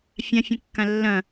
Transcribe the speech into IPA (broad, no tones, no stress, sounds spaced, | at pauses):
fʲ ã fʲ ə̃ kː ã lː ɐ̃